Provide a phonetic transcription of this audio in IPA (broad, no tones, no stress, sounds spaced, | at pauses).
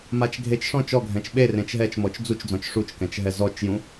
m a t͡ʃ ɡʱ e t͡ʃ ʂ ɔ̃ t͡ʃ ɔ ɡʱ ɛ̃ t͡ʃ ɓ e r ẽ t͡ʃ ɦ ɛ t͡ʃ m ɔ t͡ʃ d͡z u t͡ʃ d͡z ɔ̃ t͡ʃ ʂ u t͡ʃ k ɛ̃ t͡ʃ ɦ ɛ z ɔ t͡ʃ j ũ